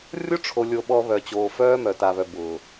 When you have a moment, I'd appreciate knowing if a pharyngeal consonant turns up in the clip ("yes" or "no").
no